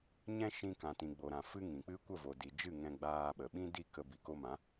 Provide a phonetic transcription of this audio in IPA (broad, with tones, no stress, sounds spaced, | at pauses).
ɲ ɛ̃˦ ʃ ĩ˧ k ã˨ t ĩ˨ ɡ͡b o˨ ɾ ã˨ f ɨ˦ ŋ ĩ˨ k͡p ɨ˦ kʷ ə˦˨ v o˨ d i˨ d͡ʒ ɨ˦˨ ŋ ɛ̃˧ ɡ͡b aː˧ ɓ ə˨ ɓ ĩ˦ d i˦˨ k ə˧ b i˨ k o˧ m ã˨˦